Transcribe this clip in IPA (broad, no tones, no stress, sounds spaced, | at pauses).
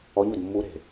ɔ ɲ o d mː u ɾ e̤